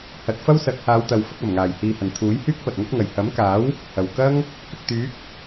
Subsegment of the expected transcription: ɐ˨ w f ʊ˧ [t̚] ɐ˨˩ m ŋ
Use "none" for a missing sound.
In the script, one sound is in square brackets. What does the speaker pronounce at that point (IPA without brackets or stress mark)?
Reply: k̚